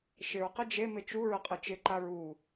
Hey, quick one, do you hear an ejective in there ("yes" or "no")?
yes